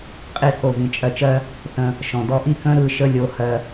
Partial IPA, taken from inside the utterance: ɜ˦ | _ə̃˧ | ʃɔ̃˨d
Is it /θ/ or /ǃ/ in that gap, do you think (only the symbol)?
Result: θ